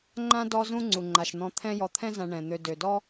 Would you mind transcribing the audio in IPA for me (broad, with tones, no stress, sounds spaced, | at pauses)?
ŋ͡ǃ ã˥ d ɔ˦ z ũ˦ ŋ͡ǀ u˩ ŋ͡ǃ a˩ ʃ n̪ ɔ̃˨ t̪ʰ ɛ̃˦ j ɔ˨ t̪ʰ ɛ̃˥ z ã˨ ɳ ɛ̃˩ n̪ ø˨ d ø˩ d ɔ˥